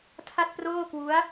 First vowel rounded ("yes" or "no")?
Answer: no